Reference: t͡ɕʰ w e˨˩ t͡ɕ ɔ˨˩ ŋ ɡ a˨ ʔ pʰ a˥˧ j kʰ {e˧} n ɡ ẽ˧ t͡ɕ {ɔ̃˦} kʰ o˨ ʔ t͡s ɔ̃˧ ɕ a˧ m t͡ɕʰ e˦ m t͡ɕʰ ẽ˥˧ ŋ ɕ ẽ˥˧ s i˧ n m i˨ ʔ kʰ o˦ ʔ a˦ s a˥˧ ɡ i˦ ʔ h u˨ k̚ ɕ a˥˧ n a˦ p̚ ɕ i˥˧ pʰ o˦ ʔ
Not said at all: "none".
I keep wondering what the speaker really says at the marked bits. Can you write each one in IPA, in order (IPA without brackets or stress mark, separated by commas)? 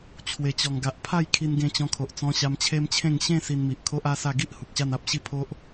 i˧, ɔ̃˧